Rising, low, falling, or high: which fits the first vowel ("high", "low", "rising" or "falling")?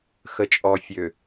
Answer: low